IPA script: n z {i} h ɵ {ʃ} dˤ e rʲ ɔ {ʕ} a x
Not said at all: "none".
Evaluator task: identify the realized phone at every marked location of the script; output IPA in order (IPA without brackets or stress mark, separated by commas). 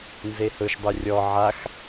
e, ʃ, ʕ